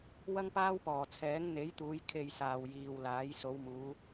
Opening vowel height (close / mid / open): open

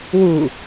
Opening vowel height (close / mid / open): close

